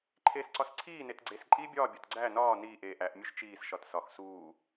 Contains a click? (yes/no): yes